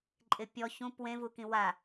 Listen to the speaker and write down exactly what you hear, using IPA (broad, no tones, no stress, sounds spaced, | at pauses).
ǃʼ ɪ pʲ ɔ ç ũ p w ẽ v u k ĩ w a